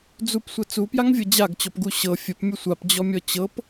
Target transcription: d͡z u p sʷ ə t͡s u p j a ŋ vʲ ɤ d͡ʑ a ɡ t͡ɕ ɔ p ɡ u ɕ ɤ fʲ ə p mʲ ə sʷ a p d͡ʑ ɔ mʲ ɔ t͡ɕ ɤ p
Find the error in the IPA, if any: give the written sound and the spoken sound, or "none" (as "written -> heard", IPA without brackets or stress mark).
none